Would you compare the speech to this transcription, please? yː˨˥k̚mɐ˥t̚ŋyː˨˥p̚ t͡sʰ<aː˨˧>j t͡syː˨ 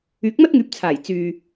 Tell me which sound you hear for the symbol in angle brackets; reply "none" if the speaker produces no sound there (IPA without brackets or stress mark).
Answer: aː˨˩